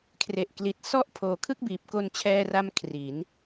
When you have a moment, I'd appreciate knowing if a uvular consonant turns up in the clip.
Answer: no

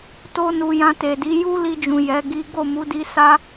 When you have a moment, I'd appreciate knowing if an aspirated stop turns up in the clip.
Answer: no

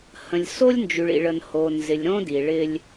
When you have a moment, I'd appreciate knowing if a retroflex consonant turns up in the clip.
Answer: yes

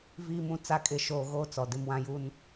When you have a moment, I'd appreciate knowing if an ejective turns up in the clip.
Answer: yes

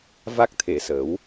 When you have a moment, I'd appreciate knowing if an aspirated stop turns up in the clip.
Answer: yes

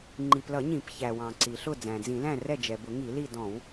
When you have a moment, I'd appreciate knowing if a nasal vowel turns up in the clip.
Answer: yes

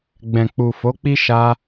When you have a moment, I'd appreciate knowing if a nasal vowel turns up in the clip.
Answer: yes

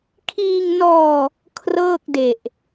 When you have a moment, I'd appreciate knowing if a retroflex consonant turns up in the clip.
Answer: no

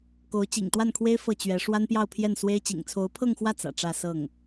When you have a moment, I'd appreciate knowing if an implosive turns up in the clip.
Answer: no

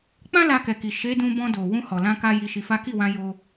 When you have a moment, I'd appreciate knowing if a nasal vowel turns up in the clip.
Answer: yes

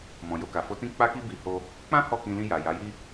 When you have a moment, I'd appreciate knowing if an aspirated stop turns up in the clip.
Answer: no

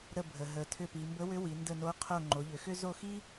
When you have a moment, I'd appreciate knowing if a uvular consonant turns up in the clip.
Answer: yes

